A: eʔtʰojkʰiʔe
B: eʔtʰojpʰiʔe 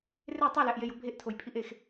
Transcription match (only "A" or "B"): B